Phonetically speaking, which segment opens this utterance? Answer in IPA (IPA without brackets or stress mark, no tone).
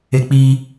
e